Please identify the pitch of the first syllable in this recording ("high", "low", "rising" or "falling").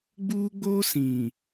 high